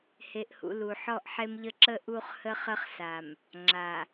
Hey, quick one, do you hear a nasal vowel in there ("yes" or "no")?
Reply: no